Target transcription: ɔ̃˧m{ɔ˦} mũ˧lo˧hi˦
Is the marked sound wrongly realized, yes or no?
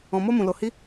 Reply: yes